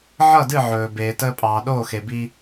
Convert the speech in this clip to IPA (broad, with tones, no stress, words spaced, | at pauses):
ʕʌ˥˩dɨ˥˩ ʕɵː˩ beː˩təː˧ pʼɑː˩ɗoː˥˩xe˩bi˧